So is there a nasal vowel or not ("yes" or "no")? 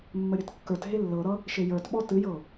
no